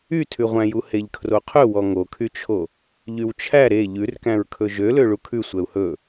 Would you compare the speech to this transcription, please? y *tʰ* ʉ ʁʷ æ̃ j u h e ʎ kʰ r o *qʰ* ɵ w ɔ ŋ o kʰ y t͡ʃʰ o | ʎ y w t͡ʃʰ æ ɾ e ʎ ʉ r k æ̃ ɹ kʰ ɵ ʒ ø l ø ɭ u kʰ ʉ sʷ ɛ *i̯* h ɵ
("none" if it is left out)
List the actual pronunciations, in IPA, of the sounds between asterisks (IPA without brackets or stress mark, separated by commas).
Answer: tʰ, qʰ, u̯